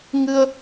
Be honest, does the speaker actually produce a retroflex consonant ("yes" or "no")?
no